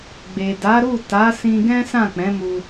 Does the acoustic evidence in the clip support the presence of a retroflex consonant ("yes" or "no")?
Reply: no